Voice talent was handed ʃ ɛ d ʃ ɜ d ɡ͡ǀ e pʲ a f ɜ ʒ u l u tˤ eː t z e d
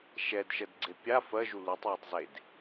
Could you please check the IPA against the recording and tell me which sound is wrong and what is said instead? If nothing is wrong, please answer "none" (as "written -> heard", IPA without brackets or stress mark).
t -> tˤ